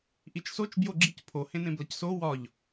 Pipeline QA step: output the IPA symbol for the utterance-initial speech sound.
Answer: ʔ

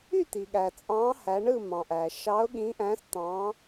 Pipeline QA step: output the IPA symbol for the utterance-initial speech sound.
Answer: y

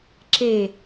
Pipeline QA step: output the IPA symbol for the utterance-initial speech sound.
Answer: ǁ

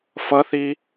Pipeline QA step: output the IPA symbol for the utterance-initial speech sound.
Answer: f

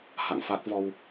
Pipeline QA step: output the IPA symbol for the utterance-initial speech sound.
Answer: h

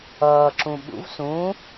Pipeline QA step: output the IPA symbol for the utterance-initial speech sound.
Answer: ʌː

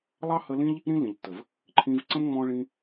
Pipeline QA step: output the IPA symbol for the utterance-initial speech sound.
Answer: lˠ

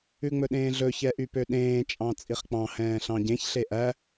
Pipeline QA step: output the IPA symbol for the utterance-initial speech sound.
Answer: ʉ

